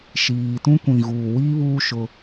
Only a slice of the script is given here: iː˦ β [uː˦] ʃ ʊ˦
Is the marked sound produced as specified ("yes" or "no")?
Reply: yes